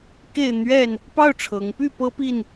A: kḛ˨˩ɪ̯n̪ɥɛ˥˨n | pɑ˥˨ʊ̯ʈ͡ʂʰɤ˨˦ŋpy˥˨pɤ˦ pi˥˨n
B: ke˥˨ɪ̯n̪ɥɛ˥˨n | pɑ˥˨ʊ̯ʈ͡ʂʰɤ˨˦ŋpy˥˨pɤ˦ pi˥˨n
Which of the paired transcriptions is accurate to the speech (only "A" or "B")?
B